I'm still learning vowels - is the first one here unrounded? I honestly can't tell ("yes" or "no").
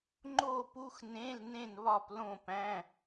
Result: no